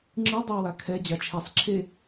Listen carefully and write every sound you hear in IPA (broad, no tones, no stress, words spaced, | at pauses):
ŋ͡ǁɯ dˤɨ wakʰɛ d͡ʑat͡ʃʰesˤ ǁʰe